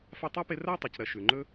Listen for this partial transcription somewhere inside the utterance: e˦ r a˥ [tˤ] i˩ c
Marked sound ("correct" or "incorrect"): correct